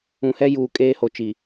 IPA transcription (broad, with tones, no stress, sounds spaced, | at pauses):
ũ˨ h ɛ˦ j uː˨ kʼ eː˦ h o˨ t͡ʃ i˨